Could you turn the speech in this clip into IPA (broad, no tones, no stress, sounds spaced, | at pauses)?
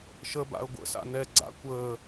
ʃ ə b a̰ ə̯ ɡʷ ə̰ s a̰ n ɛ ɡ͡ǀ a̰ kʷ əː